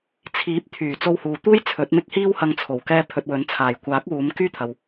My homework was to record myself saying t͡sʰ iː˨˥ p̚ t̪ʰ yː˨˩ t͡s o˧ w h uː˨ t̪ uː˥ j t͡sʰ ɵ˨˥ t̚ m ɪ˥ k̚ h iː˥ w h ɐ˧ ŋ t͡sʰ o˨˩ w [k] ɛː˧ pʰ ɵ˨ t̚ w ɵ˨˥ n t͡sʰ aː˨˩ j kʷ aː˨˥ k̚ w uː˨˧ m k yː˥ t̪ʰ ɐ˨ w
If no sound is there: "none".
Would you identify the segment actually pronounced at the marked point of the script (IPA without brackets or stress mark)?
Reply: k